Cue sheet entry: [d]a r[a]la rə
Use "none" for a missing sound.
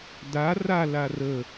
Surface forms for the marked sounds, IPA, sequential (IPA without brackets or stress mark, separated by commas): d, a